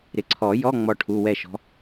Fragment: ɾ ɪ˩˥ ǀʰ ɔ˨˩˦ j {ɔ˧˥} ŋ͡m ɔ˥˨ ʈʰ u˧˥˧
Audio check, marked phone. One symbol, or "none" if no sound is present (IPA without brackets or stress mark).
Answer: ɔ˧˥˧